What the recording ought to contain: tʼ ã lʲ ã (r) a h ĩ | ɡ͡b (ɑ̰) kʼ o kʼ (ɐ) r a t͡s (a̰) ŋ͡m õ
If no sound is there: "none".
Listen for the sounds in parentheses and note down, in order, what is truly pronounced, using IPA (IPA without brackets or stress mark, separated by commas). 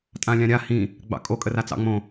ɾʲ, ɑ̰, ə, ɑ̰